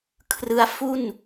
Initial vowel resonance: oral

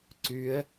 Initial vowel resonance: oral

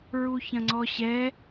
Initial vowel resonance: oral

